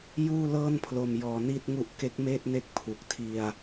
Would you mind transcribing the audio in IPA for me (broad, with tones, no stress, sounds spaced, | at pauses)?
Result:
j uː˥˩ l ɤː˥˩ n pʰ l o˧ m j ɔː˧ n i˥˩ t̚ ŋ u˦˥ ʔ k e˦˥ k̚ m eː˥˩ t̚ n e˦˥ k̚ pʰ u˨˩ k̚ tʰ i˧ a̯